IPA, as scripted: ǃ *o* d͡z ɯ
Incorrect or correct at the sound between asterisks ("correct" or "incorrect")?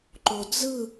correct